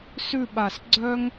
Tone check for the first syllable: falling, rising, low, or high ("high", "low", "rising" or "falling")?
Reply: falling